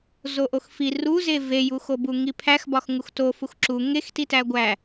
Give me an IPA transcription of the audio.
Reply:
z o ʔ o x f i r u z e v e j u x o b u ŋ i pʰ æ x b ɒ x ŋ u x t o f u x ǁ u ŋ e x t i t æ ɡʷ æ

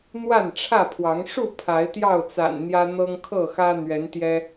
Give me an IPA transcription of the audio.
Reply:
n̪ w a˥˨ n ʈ͡ʂʰ ä˥˨ pʰ w ɑ˨˦ ŋ ʂ u˥˨ pʰ a˨˦ ɪ̯ t̪ j ɑ˥˨ ʊ̯ t͡s a̰˨˩ n n̪ j ä˦ n̪ ɤ˦ ŋ kʰ ɤ˥˨ x ä˦ n̪ ɥ ɛ˨˦ n t̪ j ɛ˦

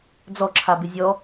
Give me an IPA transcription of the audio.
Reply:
d͡z ɔ ǁʰ a b ɪ zʲ ɔ

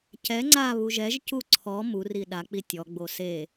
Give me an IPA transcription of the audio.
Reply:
c ɛ ŋ͡ǀ a β u ʒ ɛ ʒ c u ǀʰ ɔ m u r i ɗ a k͡p i tʲ ɔ ɡ͡b o s e

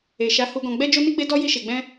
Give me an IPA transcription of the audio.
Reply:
e˨ ʃ a˨˦ h u˧ ɡ ɔ̃˧ ɡ͡b ɛ˦ d͡ʒ o˦ n i˦ ɡ͡b e˦ d ɔ˦ j i˦ ʃ e˧ ɡ͡b ɛ̃˦

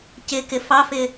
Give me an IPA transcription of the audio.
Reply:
c ɪ k ɪ f ɑ f ɪ

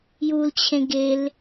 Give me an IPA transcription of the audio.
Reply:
j u l t͡ɕʰ ẽ ɡ e l

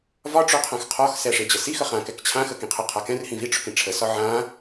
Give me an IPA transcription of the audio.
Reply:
v ɒ ʈ͡ʂ ø qʰ ã x qʰ ɒ x s ɛ ʂ e d͡ʑ ə s i x ə χ ã k ɛ k t͡ɕʰ ã x ə k ĩ qʰ ə qʰ a k ɛ̃ r h ĩ v i ʈ͡ʂ ʊ k ĩ ʈ͡ʂʰ ə s ɒ ʕ ã

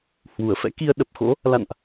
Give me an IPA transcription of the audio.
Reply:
h w u˧˩ ə̯ f ɛ̰˧˥ k i˧ ə̯ ɗ ə˨˩ p̚ x o̰˧˥ | l a̰˧˨ n ʔ

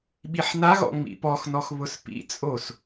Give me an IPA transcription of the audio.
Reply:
ɓ i ħ n a ɣ ɔ̰ ŋ͡m ḭ p ɔ x n ɔ x β ʊ s p ḭ t͡sʼ o s

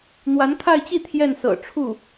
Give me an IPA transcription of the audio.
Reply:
n̪ w a˧˥ n kʰ a˥˧ ɪ̯ t͡ɕ i˥˧ t̪ʰ j ɛ˥˩ n s ɤ̰˨˩ ʈ͡ʂʰ u˥˩

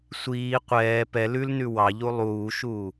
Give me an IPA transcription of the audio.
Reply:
sʷ iː qʷ ɛː p ɛ l ʉ l n ʉ w ɑ ʎ u lˠ uː ʃ uː

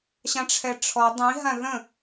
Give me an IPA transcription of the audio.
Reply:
ɕ ã ʈ͡ʂʰ ɛ ʈ͡ʂʰ ɔ dˤ ĩ ɦ ã ð ə̃

